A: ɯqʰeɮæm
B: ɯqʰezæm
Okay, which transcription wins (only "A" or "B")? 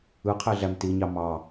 A